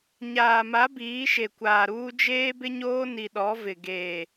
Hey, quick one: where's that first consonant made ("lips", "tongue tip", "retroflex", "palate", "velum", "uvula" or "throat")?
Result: palate